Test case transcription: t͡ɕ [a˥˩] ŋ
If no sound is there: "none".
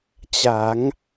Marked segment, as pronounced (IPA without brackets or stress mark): a˩˦